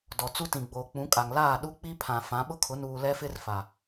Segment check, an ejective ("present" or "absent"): present